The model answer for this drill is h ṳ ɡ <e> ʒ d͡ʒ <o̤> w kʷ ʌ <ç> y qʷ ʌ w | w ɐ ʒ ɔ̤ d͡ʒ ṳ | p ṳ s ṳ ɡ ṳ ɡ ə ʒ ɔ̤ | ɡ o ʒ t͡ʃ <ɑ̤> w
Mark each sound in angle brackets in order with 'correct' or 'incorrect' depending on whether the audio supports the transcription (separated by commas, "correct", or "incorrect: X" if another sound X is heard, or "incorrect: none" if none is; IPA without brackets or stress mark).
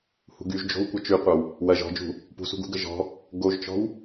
incorrect: y, correct, incorrect: t͡ʃ, incorrect: ɔ̤